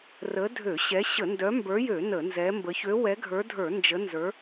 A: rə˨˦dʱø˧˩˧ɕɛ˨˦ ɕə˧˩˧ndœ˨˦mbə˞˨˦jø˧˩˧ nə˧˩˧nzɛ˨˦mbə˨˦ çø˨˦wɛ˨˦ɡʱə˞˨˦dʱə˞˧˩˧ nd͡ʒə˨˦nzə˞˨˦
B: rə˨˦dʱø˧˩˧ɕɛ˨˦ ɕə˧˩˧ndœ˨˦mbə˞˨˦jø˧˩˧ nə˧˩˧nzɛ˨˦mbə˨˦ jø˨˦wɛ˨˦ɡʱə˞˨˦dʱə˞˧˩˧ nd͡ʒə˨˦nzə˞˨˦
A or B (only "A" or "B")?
A